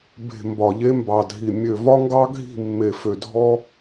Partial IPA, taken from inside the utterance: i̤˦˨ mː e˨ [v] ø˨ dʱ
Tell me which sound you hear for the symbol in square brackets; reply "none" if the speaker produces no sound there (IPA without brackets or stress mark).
f